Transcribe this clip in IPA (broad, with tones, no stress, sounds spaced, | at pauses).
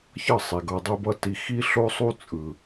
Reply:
ç ʌ˦˨ sˤ i˨ ɡ ʌ˧ dˤ ɯ˦ b ʌ˦ t i˧ x i˦ ɬ o˦ sˤ u˦ t͡sʼ ɯ˨